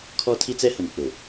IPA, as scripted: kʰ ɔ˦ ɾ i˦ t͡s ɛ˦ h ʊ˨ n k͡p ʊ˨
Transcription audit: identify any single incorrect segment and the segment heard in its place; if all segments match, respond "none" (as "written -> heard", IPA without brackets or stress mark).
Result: ɾ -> tʰ